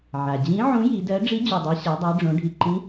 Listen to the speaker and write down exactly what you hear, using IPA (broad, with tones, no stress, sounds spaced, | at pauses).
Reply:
ʕ a˩ d͡ʑ ĩ˨˥ ʕ ũ˨˥ j i˩˧ d ɜ˨˥ ɖ͡ʐ i˨˥ d͡ʑ u˩ dˤ i˩˧ ɕ a˩˧ dˤ ɜ˩˧ ɖ͡ʐ õ˩˧ ɖʱ i˩ ǃ ĩ˨˥